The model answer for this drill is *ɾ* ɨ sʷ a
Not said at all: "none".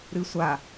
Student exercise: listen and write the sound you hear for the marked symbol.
ɾ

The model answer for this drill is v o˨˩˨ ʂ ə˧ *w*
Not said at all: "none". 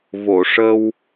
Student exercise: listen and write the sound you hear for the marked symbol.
w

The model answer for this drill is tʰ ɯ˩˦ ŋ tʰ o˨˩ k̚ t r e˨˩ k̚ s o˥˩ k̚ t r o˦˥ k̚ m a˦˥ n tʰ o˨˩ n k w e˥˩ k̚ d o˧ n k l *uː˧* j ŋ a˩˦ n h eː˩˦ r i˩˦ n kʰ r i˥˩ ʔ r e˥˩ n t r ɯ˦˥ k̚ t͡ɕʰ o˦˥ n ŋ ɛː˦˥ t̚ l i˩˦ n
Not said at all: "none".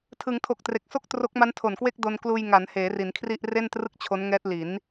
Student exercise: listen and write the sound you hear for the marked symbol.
uː˧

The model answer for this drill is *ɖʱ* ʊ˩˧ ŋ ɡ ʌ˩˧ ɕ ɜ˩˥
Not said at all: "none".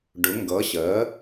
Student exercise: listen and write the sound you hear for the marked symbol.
ɖ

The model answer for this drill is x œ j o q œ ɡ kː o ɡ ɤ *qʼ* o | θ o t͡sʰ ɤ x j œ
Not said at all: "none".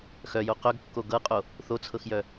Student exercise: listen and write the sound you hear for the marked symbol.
qʼ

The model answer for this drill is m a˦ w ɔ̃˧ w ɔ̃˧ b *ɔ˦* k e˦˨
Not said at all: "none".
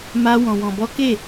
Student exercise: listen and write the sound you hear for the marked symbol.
ɔ˦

